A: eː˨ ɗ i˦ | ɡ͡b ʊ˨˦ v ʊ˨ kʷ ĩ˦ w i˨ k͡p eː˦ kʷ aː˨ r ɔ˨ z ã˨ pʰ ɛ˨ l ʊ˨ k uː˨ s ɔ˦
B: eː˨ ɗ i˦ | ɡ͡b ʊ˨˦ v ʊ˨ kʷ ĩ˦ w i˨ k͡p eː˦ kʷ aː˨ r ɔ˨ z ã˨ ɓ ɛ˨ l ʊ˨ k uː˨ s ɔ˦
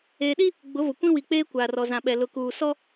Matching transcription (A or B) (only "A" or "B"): B